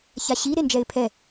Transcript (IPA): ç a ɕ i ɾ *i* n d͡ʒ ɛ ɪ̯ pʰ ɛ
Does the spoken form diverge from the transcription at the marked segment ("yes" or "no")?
yes